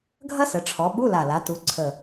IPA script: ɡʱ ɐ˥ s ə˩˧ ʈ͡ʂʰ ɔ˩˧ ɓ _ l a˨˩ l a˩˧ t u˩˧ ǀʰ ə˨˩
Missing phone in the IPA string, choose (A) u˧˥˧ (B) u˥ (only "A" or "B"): A